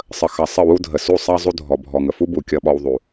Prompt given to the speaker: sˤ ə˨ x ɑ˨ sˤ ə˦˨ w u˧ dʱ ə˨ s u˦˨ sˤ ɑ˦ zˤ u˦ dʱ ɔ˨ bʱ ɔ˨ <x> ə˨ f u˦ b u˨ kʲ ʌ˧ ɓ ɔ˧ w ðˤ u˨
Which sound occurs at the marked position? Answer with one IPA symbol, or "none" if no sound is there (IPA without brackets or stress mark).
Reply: ŋ